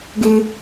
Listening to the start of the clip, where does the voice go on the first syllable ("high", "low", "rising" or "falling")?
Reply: high